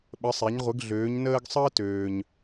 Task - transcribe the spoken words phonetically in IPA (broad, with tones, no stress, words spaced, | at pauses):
ɓə˩˧sˤe˩˧ɲ ʁʷə˩˧ɡɮøː˩˧ɲnəː˧ɡ sˤəː˧ tøː˩ɲ